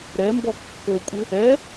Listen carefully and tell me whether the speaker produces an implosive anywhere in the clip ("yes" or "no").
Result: no